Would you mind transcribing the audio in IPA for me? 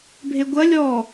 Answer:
bʱ e ɡʷ ɐ lʲ ɔ

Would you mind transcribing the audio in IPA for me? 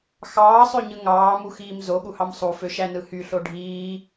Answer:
x ɑː sˤ ø ɲ ɯ ŋ ɑː m u x iː m z o ɠ u h ɑ m sˤ u f ø ʃ æ n ɯ h y ɬ o ɖʱ iː

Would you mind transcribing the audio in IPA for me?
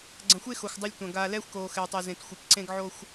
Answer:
ɡ͡ǀ ɐ̃˨ xʷ e˦ x o˨ xʷ dˤ ɐ˦ lʲ tʷ ɐ̃˨ ɡ aː˨ l ɛː˦ xʷ k oː˨ x ɛː˨ tˤ ɛ˨ z ẽ˨ t xʷ e˨ p ǀ ẽ˦ ɡ ʕ oː˦ xʷ

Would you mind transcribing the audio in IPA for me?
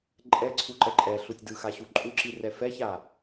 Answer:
ǃʼ ɛ ǀʰ u ǃ ɛ ǃʼ ɛ ɬ u tʲ d ɯ x a ɕ u ǃʼ u ǁ i r ɛ f ɛ ç a

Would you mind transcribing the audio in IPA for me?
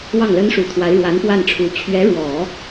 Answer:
w ɑ˥˩ ŋ l ə˥ n ʂ u˨˩ t̪ʰ w a˧˥ ɪ̯ ɻ w a˧˥ n p w a˥˩ n ʈ͡ʂʰ u˧˥ t͡ɕʰ ɥ ɛ˧˥ ɻ w ɔ˨˩˦

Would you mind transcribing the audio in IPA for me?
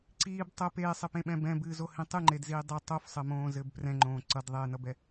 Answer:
ǀ iː b tˤ ə p eː sˤ ɘ p ẽ ɓ ɛ̃ b ɛ̃ b ɨː z o h ĩ tˤ ɨ ŋ͡ǃ e d z iː dˤ ɘ tˤ o f sˤ ɘ m õː z ɘ b p r ɛ̃ ŋ͡ǃ õː ǀ ʌ d ðˤ eː n ʌ b ɛ

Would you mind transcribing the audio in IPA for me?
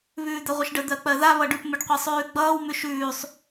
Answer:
β ʉː d̪ ɜ ʁʷ ɪ ʃ ɖ ə d̪ ɜ k͡p ɜ ð a β ʌ ɖ ʉ p m ɪ ɖ qʷ e sˤ ʉː ɡ͡b ʌː w m ʉ ʃ ʉː sˤ

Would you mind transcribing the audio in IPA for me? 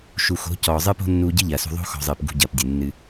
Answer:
ʃ u˨ x o̤˨˦ c ɔː˨ zˤ ɨː˦ p o̤˦ nː uː˧ ɟ ɨ˦ ʎ ɐː˨ s ṳ˧ ðˤ o̤˧ x ɔ̤˨ zˤ ɨː˨ p ɡ ṳ˧ ɟ ɐː˨ p dʲ ɨ˨ nː ɨ˧

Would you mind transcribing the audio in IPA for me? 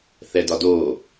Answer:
θ ɛ d ɒ d oː

